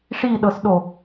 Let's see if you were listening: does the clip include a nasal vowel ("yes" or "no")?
no